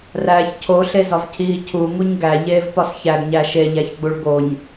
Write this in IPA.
ræːçcʰo ɬezɒvcʰiːcʰu ŋuɲɡæ ʎeːvpɒsçæɡ ɲæʃe ʎæçɡ͡buɭɡoɲ

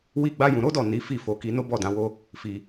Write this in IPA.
wi˦ɡ͡ba˦jũ˧ ɾo˦dɔ˦˨ ni˨˦fi˦˨ fo˧ ki˧ no˦bɔ˦˨dã˨˦ wo˦ | fi˧

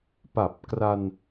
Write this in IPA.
pa˨˩p̚kra˧n

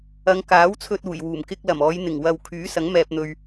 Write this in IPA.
ɐ˨˧ŋ kaː˨˥wt͡sʰɵ˧t̚ uː˨˩jwuː˨˩m kɪ˧k̚ lɐ˨˩mɔː˨˧jn̪ɪ˨˩ŋ wɐ˨wkʰyː˨˥sɐ˨˥ŋ mɛː˧p̚n̪ɵ˧ɥ

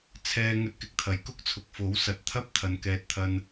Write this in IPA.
t͡sʰɛː˧ ŋɵ˧t̚kɪ˨˥k̚t̪ʰɐ˨˥j kʊ˥k̚t͡sʰʊ˨k̚ fo˨˥wsɐ˨t̚ t̪ʰɐ˥p̚ t̪ʰɐ˨˧nkɛː˧t̚ t̪ʰɐ˧n

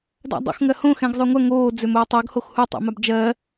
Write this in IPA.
da̰dˤo̰xŋɜ hõ xɛ̃ɡzˤøŋʷɐ ŋoːd͡zømoː tˤøɡhox hutˤɛ̰mab d͡ʒɜ

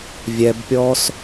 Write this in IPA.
vʲɛbpʲɔːs

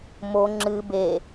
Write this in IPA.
mo ŋ͡ǁɨ be

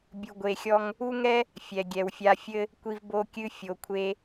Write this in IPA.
bʲu˧ɡʷe˧xʲɔ˦ŋ | u˦ŋɛ˦ | fʲɛ˨ ɡʲɛ˨wfʲa˧fʲɘ˦ | kʷi˧vbo˧kʲɨ˧ fʲo˨kʷʰe˧

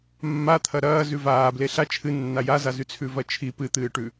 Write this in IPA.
mːat̪ʰɐ ɾɐː zʉvaːble ɬa t͡ʃʰɨ nːajazazʉ t͡sʰʉvɐt͡ʃʰi pɨt̪ɨːʈʉ

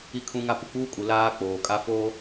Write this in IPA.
i˦kʰũ˦ŋa˦ pu˨k͡puː˦kʼu˨ laː˦ k͡poː˨kʼa˦foː˦

